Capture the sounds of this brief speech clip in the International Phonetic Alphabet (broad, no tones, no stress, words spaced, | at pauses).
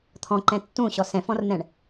t̪ʰɔ̃ǃɛ̃ tːũɕɔ sɛ̃fɔ̃rn̪ɛ̃ɳ